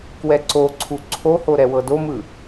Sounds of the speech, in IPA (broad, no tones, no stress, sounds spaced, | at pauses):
k w ɛ ǀ o ǀʰ u ǀʰ o h o ɾ ɛ w ɤ d o m ɯ